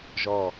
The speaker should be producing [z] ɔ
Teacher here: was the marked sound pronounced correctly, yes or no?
no